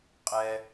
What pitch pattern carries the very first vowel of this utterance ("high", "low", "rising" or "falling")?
low